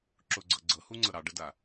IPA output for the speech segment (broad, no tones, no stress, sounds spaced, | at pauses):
ǁ ʊ ɡ͡ǀ ɤ ɡ͡ǀ ɤ h u ŋ͡ǀ ɤ ɾ ɑ ɖ ə d a